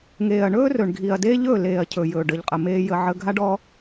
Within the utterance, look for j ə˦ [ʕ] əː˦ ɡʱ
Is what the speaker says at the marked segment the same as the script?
yes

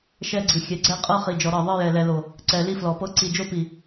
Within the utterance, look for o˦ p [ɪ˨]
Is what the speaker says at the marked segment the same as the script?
no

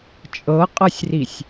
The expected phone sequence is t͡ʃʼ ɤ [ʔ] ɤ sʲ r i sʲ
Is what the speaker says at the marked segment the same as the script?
no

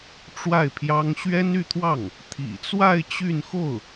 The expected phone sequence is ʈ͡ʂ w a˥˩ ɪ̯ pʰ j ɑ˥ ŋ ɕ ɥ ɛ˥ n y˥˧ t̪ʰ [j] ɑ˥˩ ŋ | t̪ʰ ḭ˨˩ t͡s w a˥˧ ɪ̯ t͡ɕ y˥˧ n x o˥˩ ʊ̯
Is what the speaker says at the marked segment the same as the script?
no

